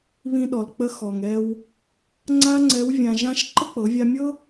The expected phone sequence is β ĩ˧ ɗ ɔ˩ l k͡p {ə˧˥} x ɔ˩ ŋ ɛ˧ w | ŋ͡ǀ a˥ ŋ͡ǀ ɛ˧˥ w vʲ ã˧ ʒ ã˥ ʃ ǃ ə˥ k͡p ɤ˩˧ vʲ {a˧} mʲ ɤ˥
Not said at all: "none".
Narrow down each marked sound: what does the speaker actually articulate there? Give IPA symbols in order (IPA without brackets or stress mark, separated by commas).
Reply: ə˧˥, a˧